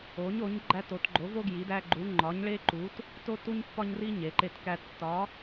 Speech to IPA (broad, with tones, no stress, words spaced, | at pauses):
o˨˦ɲo˨˦ɲ ɡ͡ǃæ˦to˨˦t ɡ͡ǃo˨˦vo˦ ɡji˨˦dæ˦ɡ͡ǃu˨˦ ŋ͡ǃɒ˨˦ɲɭe˦ǃu˨˦t | to˦tu˦ɲ pːɒ˦ɲri˦ ɲe˨˦ǃe˦tkæ˦ tːɒ˨˦